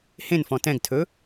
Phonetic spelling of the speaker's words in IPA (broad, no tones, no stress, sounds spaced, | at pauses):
h ẽ n f ɔ̃ t ɛ̃ ɡ tʰ ɵ